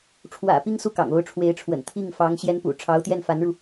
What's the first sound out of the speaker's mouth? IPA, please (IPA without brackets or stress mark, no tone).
ʈ͡ʂʰ